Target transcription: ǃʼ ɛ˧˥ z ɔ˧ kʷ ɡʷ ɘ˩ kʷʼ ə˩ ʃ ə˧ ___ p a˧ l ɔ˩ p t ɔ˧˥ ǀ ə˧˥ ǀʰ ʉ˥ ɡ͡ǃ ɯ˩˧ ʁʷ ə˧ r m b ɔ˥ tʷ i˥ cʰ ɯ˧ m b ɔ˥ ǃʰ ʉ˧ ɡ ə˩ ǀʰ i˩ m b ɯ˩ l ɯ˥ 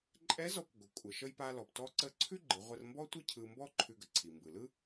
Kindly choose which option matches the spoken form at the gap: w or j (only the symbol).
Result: j